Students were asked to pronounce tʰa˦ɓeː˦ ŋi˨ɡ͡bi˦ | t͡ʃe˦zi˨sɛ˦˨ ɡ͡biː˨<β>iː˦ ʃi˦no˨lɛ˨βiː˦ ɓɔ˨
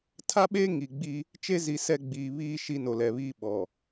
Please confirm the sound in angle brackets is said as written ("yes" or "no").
yes